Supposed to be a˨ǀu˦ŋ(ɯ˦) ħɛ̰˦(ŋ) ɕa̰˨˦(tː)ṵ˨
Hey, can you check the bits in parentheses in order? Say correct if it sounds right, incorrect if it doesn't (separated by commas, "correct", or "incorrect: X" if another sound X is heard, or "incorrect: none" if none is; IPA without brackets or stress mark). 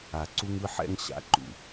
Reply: correct, correct, incorrect: ǃ